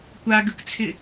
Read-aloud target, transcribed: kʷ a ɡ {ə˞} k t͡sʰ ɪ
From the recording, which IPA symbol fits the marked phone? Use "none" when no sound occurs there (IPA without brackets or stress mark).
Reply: ə